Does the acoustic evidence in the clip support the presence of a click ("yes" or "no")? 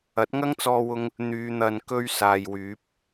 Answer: no